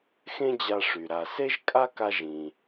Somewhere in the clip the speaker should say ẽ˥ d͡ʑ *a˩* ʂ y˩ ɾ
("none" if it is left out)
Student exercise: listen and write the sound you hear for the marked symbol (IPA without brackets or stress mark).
a˧